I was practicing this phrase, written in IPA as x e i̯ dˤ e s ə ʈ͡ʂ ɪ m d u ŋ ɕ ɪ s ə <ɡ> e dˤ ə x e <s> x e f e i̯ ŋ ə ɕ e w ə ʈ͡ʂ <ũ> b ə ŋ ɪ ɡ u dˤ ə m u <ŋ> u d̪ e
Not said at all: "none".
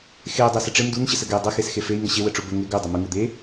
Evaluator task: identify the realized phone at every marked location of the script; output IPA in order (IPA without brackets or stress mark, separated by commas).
ɡ, s, u, ŋ